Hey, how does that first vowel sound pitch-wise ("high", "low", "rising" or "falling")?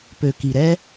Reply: low